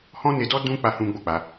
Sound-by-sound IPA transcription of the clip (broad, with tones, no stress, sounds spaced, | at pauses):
h ɔ̃˦ n e˧ d ɔ˦ d ũ˧ k͡p a˦ h ũ˦ ɡ͡b o˦˨ k͡p a˧